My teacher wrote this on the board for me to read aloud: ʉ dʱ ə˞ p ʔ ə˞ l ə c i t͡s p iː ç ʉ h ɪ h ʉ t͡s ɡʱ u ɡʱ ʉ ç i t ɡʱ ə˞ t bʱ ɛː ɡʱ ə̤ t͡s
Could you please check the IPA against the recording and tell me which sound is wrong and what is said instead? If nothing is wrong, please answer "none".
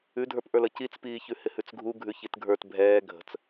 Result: none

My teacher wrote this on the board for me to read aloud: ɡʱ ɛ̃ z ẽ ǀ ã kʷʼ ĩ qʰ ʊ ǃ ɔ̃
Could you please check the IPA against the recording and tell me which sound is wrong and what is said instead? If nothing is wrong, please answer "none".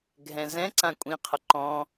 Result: ẽ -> ɛ̃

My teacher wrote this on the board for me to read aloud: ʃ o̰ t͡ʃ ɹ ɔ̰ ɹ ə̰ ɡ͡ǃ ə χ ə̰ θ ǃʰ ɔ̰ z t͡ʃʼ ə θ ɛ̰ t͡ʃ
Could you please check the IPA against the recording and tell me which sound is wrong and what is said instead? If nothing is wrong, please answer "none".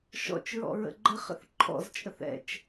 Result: o̰ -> ɔ̰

